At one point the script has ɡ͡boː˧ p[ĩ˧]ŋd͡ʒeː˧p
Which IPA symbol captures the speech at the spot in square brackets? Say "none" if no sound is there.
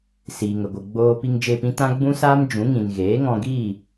i˧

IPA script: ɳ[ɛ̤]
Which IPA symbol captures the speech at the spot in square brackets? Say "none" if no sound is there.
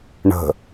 ə̤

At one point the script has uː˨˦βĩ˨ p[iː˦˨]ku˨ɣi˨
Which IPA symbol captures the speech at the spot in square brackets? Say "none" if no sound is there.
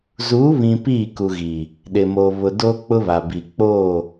iː˦˨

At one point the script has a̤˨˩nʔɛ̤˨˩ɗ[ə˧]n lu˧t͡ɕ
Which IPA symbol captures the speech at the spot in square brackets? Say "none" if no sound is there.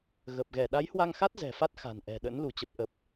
ə̰˧˥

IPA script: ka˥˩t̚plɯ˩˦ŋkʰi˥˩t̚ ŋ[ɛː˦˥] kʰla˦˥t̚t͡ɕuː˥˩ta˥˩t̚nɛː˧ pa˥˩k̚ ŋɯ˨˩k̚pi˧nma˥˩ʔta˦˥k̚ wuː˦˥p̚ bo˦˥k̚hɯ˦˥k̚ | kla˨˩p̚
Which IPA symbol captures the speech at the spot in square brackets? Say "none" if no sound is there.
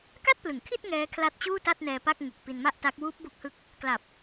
ɛː˦˥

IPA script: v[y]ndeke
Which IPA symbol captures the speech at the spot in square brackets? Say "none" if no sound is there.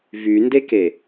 y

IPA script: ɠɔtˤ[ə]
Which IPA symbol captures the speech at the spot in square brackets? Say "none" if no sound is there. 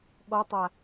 a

